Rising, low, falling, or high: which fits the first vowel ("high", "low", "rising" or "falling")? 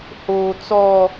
high